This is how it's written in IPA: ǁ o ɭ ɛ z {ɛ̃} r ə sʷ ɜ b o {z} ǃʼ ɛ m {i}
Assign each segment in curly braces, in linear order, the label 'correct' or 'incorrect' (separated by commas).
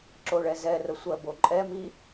incorrect, incorrect, correct